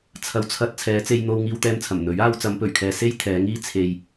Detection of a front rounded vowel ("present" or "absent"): absent